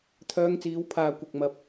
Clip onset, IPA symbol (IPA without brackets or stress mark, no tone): t̪ʰ